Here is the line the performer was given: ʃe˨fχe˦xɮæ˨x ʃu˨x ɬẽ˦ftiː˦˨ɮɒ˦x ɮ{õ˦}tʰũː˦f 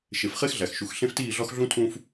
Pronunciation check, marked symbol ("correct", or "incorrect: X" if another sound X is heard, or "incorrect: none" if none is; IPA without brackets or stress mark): incorrect: ũ˦